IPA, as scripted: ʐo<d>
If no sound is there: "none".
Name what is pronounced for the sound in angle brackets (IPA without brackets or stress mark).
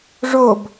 b